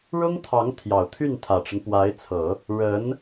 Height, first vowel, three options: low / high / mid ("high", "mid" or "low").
high